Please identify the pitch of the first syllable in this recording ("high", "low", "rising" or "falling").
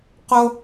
high